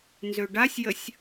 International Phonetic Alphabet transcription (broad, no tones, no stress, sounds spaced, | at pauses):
n z ø ɖ a sʲ j ə sʲ